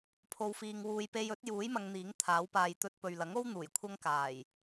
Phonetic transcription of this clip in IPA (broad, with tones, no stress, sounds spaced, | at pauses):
pʰ o˨ w f iː˨ ŋ w uː˨ j p e˧ j ɵ˨˥ t̚ j uː˨˥ j m ɐ˨˧ ŋ n̪ iː˨˥ ŋ t̪ʰ aː˨˥ w p aː˧ j t̪ ɵ˧ t̚ p ɵ˨ ɥ l ɐ˨˥ ŋ o˥ w n̪ uː˨˩ j kʷʰ ɐ˥ ŋ k aː˨˩ j